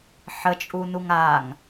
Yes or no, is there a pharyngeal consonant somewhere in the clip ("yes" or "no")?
yes